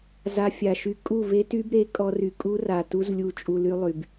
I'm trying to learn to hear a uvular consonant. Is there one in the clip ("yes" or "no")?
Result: no